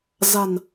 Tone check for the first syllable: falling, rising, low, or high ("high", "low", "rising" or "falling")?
low